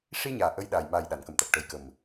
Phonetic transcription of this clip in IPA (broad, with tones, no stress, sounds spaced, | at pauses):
ʂ i˧ ɲ aː˨˩ ʔ ə˧˥ j ɗ a˨˩ j m aː˨˩ j ɗ a˨˩˨ n k ə˨˩˨ m t̪ a˨˩ k̚ ʈ ə˨˩ j k ə˨˩ m